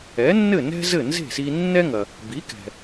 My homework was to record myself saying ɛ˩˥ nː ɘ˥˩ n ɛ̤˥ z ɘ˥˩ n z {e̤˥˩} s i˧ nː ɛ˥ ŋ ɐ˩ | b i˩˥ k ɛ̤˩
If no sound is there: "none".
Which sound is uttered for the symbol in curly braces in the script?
e̤˥˩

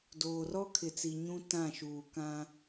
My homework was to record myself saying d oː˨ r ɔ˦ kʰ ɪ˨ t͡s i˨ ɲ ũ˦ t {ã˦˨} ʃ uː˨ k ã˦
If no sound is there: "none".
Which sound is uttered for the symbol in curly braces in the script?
ã˦˨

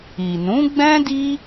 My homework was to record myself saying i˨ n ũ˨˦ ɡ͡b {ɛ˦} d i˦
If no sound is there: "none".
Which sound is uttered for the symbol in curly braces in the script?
ɛ̃˦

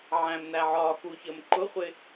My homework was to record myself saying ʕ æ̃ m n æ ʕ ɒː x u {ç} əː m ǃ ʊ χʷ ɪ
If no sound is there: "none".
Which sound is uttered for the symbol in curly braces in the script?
ç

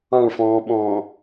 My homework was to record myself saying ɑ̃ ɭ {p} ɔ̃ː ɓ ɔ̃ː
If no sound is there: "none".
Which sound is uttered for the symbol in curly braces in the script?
f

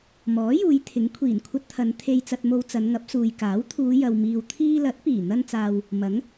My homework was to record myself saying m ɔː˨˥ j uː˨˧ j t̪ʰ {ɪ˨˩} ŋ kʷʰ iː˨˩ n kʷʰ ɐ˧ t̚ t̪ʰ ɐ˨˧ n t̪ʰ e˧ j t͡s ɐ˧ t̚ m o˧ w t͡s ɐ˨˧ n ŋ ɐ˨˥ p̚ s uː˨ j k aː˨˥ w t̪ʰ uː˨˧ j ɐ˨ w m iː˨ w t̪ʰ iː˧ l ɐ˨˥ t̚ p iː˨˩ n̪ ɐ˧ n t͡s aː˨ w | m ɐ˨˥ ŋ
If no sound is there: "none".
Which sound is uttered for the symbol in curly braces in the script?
ɪ˨˥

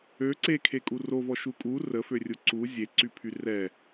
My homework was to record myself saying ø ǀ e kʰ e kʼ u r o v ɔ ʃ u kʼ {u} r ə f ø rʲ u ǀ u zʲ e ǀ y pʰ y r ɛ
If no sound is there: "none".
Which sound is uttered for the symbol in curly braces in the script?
u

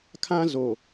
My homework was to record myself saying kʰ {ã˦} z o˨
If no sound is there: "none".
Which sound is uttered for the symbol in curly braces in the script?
ã˦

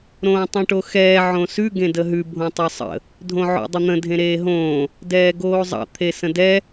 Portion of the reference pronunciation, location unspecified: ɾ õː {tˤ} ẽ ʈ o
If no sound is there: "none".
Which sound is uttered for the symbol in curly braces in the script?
tˤ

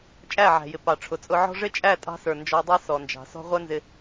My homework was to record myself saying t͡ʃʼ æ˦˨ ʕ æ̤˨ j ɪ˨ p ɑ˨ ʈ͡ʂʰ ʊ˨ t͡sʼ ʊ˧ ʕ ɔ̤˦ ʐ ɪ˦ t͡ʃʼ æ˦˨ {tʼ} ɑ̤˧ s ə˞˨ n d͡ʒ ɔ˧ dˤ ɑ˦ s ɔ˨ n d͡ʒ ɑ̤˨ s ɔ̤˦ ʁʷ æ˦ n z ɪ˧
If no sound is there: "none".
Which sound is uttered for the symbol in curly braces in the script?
tʼ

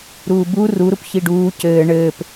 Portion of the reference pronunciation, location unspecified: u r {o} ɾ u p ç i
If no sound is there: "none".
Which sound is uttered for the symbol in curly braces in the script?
u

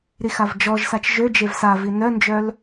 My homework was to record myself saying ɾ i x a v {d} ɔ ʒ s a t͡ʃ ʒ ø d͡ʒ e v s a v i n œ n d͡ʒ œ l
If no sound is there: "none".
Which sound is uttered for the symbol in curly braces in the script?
d͡ʒ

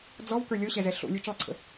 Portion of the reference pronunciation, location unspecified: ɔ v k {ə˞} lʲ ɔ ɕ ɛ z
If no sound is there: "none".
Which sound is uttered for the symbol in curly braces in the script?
ə˞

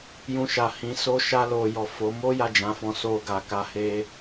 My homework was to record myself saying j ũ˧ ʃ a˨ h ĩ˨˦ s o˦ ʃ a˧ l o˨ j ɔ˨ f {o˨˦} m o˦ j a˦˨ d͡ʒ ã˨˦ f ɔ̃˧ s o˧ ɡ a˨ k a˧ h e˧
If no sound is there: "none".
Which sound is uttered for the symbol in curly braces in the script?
o˨˦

